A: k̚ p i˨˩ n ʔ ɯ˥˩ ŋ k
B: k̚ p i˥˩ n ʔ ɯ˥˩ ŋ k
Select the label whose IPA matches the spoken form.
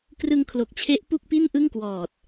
B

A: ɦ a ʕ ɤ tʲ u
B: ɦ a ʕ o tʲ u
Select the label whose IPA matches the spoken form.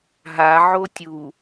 B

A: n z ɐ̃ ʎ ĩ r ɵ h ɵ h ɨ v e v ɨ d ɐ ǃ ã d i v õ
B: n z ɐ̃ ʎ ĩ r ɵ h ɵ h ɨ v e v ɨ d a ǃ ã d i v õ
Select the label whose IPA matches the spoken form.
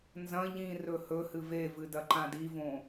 A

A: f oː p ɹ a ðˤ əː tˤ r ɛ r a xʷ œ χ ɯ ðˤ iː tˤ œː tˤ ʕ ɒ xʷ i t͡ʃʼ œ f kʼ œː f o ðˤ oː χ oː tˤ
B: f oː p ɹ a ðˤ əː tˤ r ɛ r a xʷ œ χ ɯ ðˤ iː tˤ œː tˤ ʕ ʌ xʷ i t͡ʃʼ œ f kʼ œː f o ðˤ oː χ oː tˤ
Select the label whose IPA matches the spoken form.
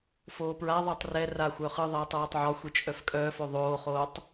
A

